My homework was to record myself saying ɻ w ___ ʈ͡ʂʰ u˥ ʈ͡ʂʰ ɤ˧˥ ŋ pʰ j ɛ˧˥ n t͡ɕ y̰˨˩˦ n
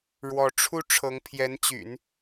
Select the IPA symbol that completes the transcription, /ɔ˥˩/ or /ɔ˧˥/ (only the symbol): ɔ˧˥